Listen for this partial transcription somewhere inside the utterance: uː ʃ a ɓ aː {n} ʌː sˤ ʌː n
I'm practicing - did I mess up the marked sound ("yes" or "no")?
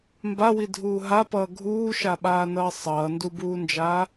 no